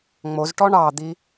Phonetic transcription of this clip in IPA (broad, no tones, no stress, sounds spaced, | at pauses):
ŋ͡m o z ʈ ɔ ɳ ɑ d̪ i